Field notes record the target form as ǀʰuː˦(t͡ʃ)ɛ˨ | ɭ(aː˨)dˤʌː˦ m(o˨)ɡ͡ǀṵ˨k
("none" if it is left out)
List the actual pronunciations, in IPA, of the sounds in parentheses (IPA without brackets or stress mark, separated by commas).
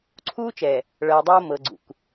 t͡ʃ, ʌː˨, ɤ˨